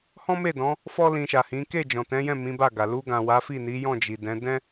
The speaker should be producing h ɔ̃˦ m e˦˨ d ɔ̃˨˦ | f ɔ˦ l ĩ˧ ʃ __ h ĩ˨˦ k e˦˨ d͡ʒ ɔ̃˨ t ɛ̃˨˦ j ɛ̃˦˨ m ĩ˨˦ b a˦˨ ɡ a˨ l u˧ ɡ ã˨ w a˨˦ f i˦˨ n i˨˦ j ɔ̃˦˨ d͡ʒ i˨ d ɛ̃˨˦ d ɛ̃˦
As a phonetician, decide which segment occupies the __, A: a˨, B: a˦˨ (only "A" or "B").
A